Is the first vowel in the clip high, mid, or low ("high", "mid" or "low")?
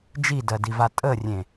high